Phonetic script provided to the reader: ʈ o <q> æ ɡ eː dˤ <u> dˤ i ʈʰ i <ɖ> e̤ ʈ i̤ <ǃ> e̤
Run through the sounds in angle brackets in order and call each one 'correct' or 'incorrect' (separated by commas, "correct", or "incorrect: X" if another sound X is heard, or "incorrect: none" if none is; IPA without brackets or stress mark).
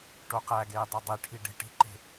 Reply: correct, incorrect: o, correct, correct